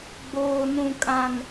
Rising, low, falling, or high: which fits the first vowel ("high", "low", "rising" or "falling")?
low